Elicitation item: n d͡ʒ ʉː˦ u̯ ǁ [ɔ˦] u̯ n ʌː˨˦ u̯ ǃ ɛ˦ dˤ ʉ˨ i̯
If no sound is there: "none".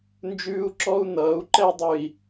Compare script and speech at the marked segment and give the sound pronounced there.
ɔ˦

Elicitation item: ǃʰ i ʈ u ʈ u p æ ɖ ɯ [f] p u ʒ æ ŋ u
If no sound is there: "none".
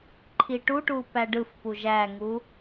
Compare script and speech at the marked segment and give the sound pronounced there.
f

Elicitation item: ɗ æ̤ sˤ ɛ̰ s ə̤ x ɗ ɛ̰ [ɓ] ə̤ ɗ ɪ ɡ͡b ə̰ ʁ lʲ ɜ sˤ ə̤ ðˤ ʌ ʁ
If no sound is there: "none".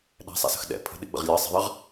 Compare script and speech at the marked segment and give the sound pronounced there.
pʰ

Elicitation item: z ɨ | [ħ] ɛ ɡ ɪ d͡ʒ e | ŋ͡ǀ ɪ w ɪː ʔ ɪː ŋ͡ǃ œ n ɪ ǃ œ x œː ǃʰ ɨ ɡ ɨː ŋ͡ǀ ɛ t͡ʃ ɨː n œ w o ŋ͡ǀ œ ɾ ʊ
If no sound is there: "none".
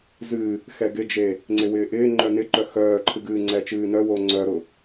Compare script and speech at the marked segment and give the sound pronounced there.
x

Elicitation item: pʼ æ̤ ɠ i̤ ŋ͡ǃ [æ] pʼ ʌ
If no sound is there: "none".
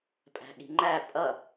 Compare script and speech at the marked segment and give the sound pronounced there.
æ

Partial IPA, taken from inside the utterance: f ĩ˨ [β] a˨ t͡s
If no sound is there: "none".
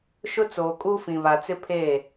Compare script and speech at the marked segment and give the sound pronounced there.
β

